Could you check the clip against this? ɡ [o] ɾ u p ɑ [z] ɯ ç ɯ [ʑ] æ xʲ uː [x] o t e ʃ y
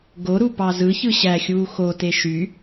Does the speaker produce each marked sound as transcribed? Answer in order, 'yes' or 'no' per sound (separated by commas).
yes, yes, no, yes